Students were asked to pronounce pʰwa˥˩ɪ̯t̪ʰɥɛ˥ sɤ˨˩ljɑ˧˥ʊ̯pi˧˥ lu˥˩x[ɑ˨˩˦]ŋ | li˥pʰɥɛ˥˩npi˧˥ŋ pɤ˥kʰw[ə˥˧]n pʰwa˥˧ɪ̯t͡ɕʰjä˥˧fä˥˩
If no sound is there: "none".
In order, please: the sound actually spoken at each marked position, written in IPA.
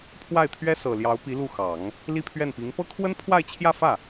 ɑ˨˩˦, ə˥

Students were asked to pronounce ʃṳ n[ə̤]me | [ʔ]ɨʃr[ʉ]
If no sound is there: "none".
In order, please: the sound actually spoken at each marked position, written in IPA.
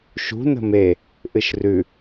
ə̤, ʔ, ʉ

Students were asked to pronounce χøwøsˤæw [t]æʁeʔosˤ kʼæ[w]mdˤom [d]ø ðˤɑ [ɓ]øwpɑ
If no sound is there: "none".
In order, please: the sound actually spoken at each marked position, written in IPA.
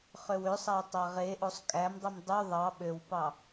tˤ, none, dˤ, ɓ

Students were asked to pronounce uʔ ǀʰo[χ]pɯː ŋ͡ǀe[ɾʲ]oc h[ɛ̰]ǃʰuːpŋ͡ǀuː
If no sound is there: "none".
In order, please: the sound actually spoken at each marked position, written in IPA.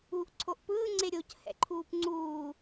ʔ, ɾʲ, ɛ̰

